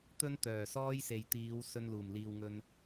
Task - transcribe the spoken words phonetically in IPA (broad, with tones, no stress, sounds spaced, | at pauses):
t̪ ɵ˥ n t̪ œː˨˩ s ɔː˥ j s e˨ j t̪ iː˨˧ w s ɵ˧ n l uː˨˩ m l iː˨ w ŋ ɵ˧ n